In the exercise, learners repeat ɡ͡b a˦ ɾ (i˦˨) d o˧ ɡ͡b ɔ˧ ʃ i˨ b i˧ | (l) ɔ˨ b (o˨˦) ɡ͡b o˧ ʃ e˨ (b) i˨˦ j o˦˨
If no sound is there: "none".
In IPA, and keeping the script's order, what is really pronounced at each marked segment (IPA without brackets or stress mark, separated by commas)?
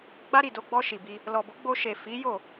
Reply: i˦˨, l, o˨˦, f